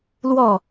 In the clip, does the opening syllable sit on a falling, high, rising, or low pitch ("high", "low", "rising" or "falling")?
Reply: falling